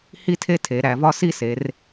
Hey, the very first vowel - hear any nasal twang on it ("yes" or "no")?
no